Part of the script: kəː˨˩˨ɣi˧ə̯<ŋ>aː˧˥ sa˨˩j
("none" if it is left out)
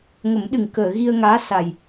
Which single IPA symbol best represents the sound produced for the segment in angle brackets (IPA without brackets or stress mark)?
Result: ŋ